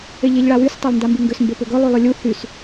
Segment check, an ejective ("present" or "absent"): absent